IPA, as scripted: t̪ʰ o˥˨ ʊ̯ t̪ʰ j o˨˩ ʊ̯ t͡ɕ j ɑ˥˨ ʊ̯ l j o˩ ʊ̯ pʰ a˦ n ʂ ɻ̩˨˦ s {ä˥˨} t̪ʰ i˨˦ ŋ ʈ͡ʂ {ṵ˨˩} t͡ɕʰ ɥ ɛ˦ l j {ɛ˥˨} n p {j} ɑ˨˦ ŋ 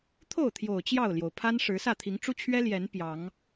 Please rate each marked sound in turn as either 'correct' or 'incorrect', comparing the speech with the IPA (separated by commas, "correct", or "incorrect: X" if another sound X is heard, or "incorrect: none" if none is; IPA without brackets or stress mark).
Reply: correct, incorrect: u˦, incorrect: ɛ˨˦, correct